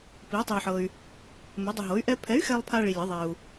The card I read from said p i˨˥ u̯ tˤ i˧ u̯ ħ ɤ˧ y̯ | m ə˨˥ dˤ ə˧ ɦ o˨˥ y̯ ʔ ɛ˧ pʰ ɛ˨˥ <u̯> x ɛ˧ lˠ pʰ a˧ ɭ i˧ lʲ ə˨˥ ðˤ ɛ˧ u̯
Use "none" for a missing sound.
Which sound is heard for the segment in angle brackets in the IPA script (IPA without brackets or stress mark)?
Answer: y̯